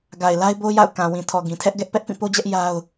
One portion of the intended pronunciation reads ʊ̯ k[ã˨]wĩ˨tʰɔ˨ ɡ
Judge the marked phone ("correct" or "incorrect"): correct